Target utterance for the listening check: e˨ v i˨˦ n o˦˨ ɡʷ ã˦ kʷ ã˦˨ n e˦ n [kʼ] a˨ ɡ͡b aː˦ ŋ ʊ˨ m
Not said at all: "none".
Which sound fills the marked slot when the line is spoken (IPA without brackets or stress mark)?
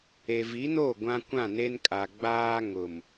kʼ